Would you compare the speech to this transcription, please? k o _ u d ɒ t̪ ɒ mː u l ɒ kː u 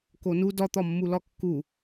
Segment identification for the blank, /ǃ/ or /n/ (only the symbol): n